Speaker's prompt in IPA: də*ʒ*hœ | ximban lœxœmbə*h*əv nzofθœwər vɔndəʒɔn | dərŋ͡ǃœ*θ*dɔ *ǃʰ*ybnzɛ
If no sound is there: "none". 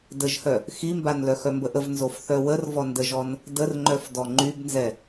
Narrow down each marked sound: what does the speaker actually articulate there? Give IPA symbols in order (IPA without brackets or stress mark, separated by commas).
ʒ, ʔ, f, ŋ͡ǃ